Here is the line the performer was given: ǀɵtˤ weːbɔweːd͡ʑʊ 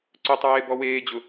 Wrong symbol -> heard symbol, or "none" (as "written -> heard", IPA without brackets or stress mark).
none